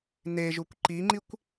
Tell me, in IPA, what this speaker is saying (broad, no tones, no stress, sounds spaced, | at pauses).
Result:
n e ʒ u kʷ ǃ i ŋ͡ǃ i kʷ